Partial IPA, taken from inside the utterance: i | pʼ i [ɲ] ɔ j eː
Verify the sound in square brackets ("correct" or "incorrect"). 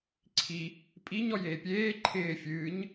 correct